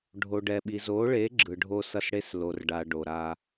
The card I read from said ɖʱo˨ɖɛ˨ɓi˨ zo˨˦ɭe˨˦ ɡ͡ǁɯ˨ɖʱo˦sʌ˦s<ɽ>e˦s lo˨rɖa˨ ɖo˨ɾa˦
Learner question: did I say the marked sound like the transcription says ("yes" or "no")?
yes